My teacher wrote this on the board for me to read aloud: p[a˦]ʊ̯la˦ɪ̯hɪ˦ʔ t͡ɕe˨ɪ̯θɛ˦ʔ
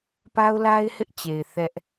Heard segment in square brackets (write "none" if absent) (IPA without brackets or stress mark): a˦